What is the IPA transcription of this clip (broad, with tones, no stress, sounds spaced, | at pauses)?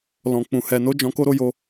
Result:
l ɔ̃˨ k͡p ũ˨ h ɛ˨ n o˨˦ d͡ʒ ɔ̃˧ k o˦ ɾ o˧ j o˧